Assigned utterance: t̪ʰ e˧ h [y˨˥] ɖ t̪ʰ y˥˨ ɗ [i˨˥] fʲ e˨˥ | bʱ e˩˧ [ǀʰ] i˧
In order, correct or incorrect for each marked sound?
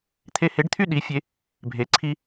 incorrect, correct, correct

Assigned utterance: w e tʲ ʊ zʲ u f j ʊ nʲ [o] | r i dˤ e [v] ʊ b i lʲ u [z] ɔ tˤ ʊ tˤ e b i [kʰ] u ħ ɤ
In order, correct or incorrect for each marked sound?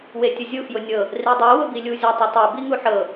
incorrect, incorrect, incorrect, incorrect

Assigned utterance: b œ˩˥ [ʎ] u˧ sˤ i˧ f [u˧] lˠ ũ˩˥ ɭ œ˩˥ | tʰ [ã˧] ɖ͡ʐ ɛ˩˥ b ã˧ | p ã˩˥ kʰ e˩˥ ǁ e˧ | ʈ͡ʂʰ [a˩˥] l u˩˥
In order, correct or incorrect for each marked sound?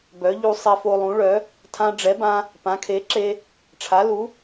correct, incorrect, correct, correct

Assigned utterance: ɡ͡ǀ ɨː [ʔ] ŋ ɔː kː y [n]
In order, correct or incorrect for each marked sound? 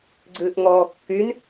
correct, correct

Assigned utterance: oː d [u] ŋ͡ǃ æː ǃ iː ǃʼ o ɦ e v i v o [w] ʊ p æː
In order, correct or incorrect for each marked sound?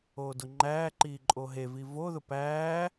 incorrect, incorrect

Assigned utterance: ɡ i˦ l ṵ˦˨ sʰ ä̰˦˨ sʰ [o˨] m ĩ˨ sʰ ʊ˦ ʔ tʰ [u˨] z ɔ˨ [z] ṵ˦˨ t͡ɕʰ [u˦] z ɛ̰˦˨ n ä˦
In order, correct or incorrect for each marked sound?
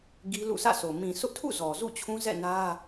correct, incorrect, correct, incorrect

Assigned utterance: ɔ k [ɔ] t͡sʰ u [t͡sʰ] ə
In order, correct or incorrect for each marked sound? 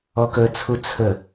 incorrect, correct

